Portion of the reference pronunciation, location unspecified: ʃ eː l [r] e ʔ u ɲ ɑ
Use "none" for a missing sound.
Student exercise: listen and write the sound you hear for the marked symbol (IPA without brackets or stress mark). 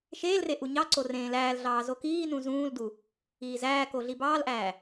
r